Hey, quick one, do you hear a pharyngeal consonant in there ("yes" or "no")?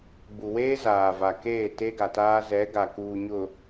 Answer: no